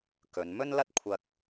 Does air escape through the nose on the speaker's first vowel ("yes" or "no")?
no